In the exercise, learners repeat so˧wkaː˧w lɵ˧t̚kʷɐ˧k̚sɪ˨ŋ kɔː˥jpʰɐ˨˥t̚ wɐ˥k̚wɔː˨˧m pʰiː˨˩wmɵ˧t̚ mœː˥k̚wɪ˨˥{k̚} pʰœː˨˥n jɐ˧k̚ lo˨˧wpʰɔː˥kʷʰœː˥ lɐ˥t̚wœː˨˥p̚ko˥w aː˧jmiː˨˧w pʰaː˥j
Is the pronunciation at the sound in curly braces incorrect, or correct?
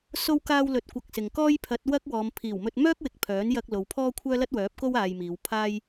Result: correct